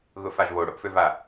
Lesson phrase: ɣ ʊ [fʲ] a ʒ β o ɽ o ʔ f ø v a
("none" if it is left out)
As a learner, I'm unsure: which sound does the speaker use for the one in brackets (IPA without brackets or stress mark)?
f